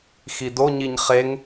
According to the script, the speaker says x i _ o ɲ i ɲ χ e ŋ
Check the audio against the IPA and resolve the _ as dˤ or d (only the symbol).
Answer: d